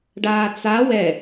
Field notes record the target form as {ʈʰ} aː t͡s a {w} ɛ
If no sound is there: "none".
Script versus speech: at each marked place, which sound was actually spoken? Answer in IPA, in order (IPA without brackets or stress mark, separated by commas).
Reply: ɖ, w